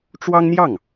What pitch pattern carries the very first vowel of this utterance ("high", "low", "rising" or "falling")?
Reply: high